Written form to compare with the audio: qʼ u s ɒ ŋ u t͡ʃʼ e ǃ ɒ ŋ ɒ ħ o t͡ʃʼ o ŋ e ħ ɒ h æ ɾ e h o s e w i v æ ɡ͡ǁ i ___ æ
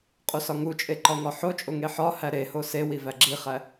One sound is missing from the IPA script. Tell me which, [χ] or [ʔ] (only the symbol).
χ